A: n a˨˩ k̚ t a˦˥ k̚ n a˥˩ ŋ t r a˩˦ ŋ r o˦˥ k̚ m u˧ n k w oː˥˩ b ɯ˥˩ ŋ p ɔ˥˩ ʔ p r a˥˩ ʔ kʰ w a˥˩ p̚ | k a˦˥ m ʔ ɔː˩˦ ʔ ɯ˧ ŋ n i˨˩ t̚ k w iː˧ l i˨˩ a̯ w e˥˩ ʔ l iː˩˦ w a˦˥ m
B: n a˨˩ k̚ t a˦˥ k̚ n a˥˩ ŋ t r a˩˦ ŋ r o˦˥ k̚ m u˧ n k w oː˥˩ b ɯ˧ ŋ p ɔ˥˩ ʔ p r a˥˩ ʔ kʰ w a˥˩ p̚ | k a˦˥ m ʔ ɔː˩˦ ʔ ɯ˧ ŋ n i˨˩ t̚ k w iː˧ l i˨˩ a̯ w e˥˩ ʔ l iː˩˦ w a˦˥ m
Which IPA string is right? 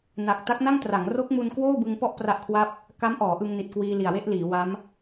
B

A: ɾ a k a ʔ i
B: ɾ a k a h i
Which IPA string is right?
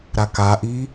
A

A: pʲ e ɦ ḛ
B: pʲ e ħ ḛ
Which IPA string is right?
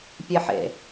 B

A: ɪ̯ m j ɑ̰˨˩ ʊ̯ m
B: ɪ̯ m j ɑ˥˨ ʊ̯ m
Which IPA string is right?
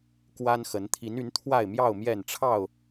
B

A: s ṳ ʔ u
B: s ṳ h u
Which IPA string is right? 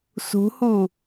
B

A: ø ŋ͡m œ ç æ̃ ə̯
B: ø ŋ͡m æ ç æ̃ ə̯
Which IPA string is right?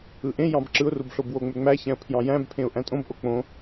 B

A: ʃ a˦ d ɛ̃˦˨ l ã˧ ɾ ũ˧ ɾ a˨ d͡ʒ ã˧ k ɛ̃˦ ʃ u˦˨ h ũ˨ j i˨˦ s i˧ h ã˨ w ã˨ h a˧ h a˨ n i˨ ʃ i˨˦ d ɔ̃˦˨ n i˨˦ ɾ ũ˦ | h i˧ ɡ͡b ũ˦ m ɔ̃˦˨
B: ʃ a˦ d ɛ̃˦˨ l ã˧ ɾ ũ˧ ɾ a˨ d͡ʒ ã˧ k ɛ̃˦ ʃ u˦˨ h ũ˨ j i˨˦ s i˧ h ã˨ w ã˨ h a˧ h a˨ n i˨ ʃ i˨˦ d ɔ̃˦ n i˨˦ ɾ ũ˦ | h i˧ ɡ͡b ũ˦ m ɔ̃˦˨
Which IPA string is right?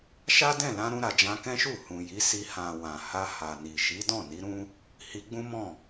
A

